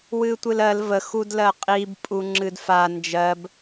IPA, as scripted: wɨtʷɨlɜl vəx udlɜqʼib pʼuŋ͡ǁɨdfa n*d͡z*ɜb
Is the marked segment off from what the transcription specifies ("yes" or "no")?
yes